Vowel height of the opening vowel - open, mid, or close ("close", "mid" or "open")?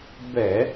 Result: mid